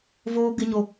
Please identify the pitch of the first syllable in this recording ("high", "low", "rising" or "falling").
high